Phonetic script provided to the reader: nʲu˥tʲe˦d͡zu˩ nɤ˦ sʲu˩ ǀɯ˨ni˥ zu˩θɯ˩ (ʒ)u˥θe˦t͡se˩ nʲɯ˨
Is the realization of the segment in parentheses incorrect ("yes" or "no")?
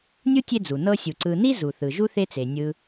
no